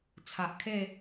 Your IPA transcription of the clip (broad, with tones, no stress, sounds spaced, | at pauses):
t͡sʰ a˨ ʔ kʰ e˥˧